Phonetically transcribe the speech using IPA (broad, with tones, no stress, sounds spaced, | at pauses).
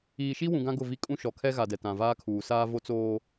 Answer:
iː˨ ʃ i˦ w ũ˨ ɡ ã˦ ɡ ʊ˦˨ v i˦ kʼ ũ˦ ʃ ɔ˨ kʰ ɛ˦ ɣ a˨ d ɛ˨ t ã˨ v aː˦ kʰ uː˨ s aː˦ v o˦ t͡s oː˦